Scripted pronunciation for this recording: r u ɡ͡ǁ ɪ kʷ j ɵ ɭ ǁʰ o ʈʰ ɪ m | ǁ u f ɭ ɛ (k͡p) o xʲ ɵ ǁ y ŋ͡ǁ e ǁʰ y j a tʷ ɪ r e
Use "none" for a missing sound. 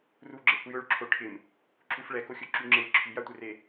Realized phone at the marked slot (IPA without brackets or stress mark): k